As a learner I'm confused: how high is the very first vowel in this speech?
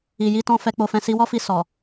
high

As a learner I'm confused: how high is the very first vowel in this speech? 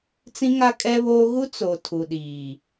high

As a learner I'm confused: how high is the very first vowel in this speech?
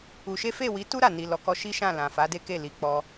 high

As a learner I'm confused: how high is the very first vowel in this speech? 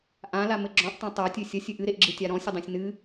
low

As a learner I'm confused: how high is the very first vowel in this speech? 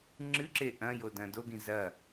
high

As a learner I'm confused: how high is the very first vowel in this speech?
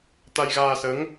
low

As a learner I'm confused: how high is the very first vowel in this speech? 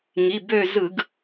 high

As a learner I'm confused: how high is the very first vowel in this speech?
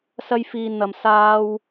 low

